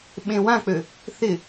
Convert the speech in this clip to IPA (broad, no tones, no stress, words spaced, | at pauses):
ɓẽwãk͡pø | θɪ